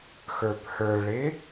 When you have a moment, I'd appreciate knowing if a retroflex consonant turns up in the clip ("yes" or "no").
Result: yes